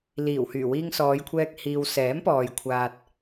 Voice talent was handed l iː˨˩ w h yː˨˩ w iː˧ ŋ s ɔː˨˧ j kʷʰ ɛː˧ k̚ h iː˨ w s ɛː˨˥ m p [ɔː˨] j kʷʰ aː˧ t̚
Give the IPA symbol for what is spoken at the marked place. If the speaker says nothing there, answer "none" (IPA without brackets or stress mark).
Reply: ɔː˨